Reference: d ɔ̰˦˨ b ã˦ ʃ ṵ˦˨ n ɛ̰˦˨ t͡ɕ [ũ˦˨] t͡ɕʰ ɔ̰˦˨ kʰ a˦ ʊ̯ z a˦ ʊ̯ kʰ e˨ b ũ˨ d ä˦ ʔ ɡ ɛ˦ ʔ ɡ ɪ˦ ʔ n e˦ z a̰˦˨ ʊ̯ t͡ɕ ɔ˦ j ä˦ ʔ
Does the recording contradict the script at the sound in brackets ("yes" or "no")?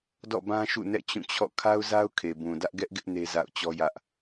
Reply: no